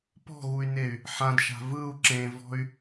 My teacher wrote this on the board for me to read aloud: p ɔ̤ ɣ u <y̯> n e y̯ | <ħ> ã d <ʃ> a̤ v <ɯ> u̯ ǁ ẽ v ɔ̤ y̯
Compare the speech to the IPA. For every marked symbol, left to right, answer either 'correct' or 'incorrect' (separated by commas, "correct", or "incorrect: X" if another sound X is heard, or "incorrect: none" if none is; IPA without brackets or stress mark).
correct, correct, correct, correct